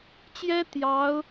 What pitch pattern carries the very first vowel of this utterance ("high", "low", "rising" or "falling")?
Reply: high